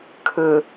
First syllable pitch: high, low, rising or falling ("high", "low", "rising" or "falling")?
low